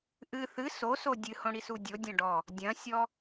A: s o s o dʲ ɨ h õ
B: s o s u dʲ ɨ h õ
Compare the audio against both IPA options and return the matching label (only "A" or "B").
A